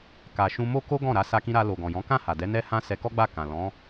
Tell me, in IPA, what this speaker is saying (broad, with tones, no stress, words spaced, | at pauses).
ka˨ʃũ˧mo˦ ko˦ ɡɔ̃˦˨ɾa˧ sa˧kĩ˧ɾa˧ lo˨ɡɔ̃˨jɔ̃˨˦ kã˦˨ ha˨dɛ˨˦ nɛ˦ hã˦sɛ˧ kɔ˦ɡ͡ba˦˨ kã˨lɔ̃˨˦